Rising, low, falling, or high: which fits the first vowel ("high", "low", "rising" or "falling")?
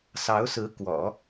rising